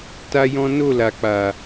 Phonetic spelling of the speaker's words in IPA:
t a˦ j ɔ̃˦ n o˦˨ l a˨ k͡p a˨

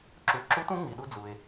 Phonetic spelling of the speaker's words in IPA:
ǁ u˩˧ ǁ u˧˥ t ũ˧˥ ŋ͡m i˩ ɗ u˧ d͡z u˩ e̯

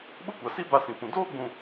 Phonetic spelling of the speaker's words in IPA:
ɓ ʊ˦ kʷ a˨ s i˦ b a˦ s ĩ˨ p ũ˨ d oː˦ ɡ͡b ũ˨

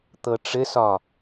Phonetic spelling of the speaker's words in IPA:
t̪ ɤ ʈ͡ʂ ɘ s ɒ

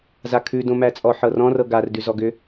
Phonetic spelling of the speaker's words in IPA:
z a kʰ ʉ d õ m æ t͡sʼ ɔ ħ ɤ r ɔ̃ r ɤ ɡ a r d ʉ z ɔ ɡ ʏ

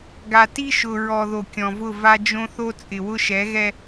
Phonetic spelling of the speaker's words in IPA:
ɡ a˨ t i˦ ʃ ʊ˨ ɹ ɔ˨ ð o˨ kʲ ɔ̃˨ v ʊ˦˨ v a˦ d͡ʒ õ˦ θ o˦ t͡sʼ ɪ˨ w ʊ˦ ʃ ɛ˨˦ ɣ ɛ˦

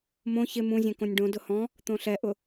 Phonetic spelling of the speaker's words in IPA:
m õ ç ɪ m ũ zʲ ẽ k õ nʲ ɖ õ d ʊ h ɔ̃ | t̪ õ ɬ ɛ ʔ ʊ

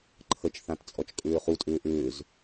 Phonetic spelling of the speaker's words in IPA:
ǃʰ ə t͡ʃ θ ã t t͡sʼ ɔ t͡ʃ kʼ ʏː χ u tʼ ʏː ʔ ʏː z

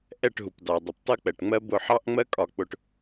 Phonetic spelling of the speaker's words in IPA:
ʔ ɛ˧˩ ʈ ɦ u˩ p d ɑ˩ dˤ ʌ˩ p tˤ ʌ˦ k͡p ɛ˩ ʈ ŋ͡m ɜ˦ b ʊ˧˩ ħ ɑ˦ ʔ ŋ͡m ɜ˦ kʼ ɒ˧˩ k͡p ʊ˧˩ ʈ

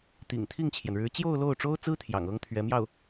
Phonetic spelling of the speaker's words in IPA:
t̪ ḭ˨˩ ŋ t̪ʰ i˥˩ ŋ t͡ɕʰ j ɛ˩ n ɻ ɻ̩˧˥ t͡ɕ j o˥˧ ʊ̯ l o˥˩ ʊ̯ ʈ͡ʂ o˥ ʊ̯ t͡s ɹ̩˥ t̪ʰ j ɑ̰˨˩ ŋ ɤ˥ ŋ t̪ʰ ɥ ɛ˧˥ m j ɑ˥˩ ʊ̯

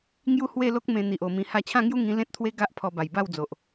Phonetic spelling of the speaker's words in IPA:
ŋ j u˥˧ h w e˥˧ l o˦ k̚ m ẽ˧ n̪ i˨ ʔ o˨˩ m ĩ˧ h a˧ t͡ɕʰ ã˥˧ ŋ j u˦ ŋ ĩ˧ l ẽ˦ t̚ t̪ʰ w e˦ ɡ a˦ ʔ pʰ ɔ˧ b a˨˩ j b a˥˧ w d͡z o˨ ʔ

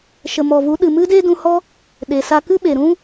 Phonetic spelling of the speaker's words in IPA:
ʃ ə˨ m ɔ˨ v u˨˦ ɗ ɨ˨ m ɨ˦ d e˦ d ũ˧ h ɔ˦ | ɗ e˨ s a˧ k ɨ˦ ɓ e˨ ɾ ũ˦

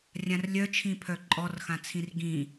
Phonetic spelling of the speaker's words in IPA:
rʲ ã r lʲ œ t͡ʃʰ ĩ pʰ œ ǃʼ ɔ r x ã t͡sʰ ĩ r ɡ ĩ

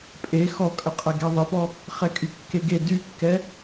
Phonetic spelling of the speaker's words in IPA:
pʼ e x ɔ kʼ ə qʼ ɛ ɡ ɛ ðˤ ɘ p ɔ | χ ɛ kʼ y kː e ɡ e d y kː ɛ

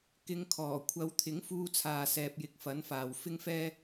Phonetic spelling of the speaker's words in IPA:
k ɪ˨˧ ŋ kʰ ɔː˨˩ kʷʰ ɐ˨˧ w t̪ʰ ɪ˨˥ ŋ f uː˧ t͡sʰ aː˨ s ɛː˨ p̚ j ɪ˨˥ k̚ f ɐ˨˥ n f aː˨ w f ɪ˥ ŋ f ɛː˥

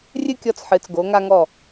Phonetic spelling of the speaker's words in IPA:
rʲ ɨ˥˧ kʲ ɔ˧ t͡s ħ ɨ˩˧ t͡s ɡ o˩˧ ŋ a˧ ŋ ɔ˧˩

